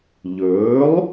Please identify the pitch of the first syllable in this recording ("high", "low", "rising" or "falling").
rising